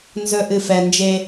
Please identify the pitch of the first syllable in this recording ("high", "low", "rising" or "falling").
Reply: low